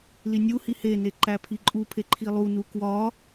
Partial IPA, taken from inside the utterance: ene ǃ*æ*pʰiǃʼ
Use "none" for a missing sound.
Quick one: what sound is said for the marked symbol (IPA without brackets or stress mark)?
æ